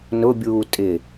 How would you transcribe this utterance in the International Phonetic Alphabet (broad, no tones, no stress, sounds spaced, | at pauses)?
n ʊ bʲ uː tʼ ɪ